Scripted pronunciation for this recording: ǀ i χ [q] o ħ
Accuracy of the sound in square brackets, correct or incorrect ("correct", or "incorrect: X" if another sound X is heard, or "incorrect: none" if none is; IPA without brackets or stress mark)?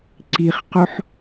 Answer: correct